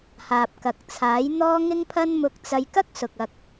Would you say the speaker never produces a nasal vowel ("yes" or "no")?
yes